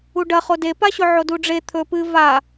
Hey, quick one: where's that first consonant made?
retroflex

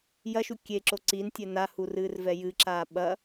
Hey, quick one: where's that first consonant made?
palate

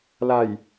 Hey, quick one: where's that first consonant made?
tongue tip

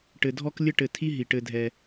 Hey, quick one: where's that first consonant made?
retroflex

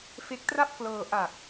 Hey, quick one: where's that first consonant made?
lips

